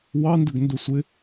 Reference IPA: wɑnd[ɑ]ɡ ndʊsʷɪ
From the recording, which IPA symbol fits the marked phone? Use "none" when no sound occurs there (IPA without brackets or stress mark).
ə